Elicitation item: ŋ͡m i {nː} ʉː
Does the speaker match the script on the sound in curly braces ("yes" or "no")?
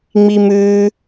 no